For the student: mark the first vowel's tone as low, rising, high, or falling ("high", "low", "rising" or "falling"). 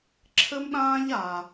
high